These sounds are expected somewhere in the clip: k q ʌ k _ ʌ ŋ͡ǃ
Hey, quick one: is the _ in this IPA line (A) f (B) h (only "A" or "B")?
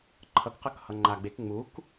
B